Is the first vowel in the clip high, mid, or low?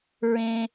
mid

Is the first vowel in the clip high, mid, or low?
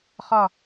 low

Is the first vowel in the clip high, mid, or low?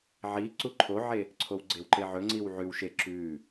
high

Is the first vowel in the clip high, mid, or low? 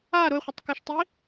low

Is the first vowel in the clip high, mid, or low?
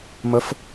mid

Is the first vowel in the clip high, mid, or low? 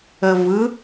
mid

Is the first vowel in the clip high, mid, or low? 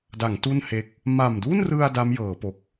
low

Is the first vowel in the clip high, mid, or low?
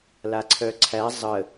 low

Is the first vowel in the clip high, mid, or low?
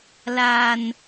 low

